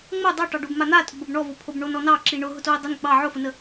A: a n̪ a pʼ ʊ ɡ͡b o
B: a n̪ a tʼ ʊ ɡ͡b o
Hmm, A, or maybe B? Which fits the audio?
B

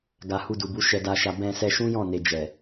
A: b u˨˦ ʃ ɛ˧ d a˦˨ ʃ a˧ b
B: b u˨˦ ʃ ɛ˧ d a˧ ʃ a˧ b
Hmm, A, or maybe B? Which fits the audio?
B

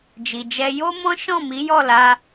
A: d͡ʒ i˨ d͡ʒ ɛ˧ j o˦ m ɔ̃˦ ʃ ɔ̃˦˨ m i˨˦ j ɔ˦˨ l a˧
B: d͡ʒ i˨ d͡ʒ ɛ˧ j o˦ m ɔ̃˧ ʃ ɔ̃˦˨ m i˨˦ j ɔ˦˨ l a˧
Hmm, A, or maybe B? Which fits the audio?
A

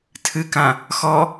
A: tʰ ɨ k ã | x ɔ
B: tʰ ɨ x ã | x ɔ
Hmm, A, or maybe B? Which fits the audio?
A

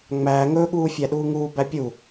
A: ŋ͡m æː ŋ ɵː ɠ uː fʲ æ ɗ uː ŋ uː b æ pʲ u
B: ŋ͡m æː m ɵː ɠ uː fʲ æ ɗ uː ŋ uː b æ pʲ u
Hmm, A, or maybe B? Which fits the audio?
A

